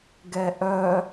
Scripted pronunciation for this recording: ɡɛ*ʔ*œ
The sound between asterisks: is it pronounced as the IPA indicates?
yes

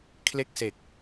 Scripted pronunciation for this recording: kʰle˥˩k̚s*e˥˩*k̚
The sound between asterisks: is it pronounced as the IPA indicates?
no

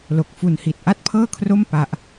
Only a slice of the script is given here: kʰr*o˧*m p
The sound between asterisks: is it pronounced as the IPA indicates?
no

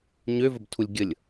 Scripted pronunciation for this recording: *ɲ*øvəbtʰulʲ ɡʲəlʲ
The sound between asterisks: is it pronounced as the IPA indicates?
yes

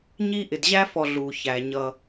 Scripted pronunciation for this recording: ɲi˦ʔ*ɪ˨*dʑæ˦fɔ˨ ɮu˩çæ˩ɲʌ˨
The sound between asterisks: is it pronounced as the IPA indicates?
yes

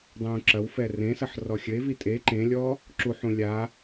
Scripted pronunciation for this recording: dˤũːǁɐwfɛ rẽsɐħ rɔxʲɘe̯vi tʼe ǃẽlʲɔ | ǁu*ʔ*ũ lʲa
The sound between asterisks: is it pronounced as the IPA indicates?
no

